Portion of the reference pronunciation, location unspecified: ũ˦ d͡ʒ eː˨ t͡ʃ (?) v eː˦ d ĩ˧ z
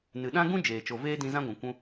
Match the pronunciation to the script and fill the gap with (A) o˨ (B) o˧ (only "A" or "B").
A